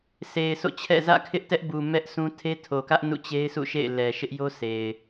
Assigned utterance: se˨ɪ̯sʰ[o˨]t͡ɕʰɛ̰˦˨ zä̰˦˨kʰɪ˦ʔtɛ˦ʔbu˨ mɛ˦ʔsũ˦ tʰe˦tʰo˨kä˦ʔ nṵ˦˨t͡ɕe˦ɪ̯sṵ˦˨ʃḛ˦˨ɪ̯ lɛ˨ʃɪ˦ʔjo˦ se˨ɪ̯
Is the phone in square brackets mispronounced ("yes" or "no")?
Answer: yes